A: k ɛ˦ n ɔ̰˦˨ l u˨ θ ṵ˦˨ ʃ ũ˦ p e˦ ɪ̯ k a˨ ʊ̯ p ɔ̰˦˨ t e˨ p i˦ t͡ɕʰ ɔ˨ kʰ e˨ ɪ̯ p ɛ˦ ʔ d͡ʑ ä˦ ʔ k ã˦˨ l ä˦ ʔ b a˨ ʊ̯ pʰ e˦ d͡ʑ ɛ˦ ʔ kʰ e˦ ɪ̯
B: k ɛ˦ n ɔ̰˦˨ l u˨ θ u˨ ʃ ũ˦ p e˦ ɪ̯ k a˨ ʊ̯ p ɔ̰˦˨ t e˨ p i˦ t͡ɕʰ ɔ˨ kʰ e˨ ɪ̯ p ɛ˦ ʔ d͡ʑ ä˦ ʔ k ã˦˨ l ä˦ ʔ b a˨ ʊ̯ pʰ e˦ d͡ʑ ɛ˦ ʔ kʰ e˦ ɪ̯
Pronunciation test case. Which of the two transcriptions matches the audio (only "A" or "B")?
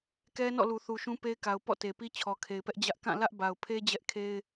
B